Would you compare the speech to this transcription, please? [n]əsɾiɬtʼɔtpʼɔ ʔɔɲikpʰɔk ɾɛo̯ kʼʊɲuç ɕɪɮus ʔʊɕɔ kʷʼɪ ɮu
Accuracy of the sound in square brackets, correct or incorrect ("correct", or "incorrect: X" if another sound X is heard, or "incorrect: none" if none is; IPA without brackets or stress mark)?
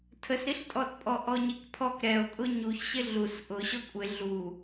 incorrect: tʰ